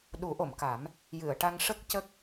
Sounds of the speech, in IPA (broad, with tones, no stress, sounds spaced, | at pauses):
ɗ u˨˩˦ ʔ o˨˩˨ m k a˨˩˦ m | j ɨ˨˩˨ ə̯ ʈ a˧ ŋ ʂ ə˦˥ k̚ c ə˦˥ k̚